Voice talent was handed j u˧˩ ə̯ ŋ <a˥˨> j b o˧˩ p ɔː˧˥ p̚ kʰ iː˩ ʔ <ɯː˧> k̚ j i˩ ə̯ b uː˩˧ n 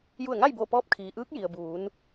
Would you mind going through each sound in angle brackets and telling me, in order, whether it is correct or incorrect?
correct, incorrect: ɯː˧˥

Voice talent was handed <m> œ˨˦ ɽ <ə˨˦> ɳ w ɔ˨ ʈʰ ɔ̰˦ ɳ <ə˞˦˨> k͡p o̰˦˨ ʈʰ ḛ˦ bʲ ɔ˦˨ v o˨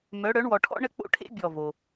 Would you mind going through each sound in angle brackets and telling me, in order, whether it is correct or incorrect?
correct, incorrect: œ˨˦, incorrect: ə˦˨

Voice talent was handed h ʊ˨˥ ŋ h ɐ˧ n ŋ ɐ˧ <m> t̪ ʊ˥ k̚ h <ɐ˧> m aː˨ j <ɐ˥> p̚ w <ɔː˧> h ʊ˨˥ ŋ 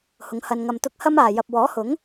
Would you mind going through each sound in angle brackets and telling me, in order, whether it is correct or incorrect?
correct, incorrect: ɐ˥, incorrect: ɐ˨, incorrect: ɔː˨˥

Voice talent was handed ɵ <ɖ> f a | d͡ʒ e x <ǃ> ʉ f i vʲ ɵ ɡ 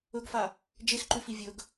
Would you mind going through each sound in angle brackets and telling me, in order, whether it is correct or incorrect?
incorrect: ɡ, correct

